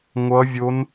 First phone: ŋʷ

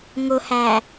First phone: ŋ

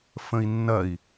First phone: f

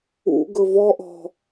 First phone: ṵ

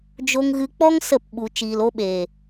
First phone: d͡ʒ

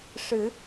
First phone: ʂ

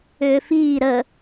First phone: ʏː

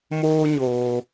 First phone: m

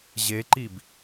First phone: ʑ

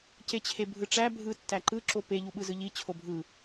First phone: c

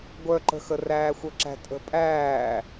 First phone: ɡʷ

